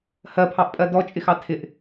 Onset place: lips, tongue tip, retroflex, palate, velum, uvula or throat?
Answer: throat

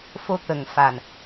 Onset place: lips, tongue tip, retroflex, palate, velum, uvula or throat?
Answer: lips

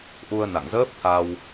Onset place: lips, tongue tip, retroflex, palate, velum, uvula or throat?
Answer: throat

